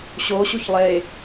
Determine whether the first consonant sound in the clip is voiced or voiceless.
voiceless